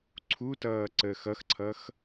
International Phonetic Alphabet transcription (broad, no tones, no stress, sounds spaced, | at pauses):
ǀʰ u t ʌː ǀ əː x ʌ x ǀʰ ʌ x